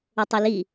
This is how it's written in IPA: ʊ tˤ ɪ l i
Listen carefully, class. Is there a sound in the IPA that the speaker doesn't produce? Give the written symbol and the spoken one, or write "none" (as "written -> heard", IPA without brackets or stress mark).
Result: none